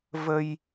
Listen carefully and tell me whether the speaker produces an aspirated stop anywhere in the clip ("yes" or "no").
no